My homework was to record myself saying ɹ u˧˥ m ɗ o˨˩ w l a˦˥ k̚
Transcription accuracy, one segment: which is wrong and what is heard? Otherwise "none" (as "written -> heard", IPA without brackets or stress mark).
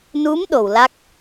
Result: ɹ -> n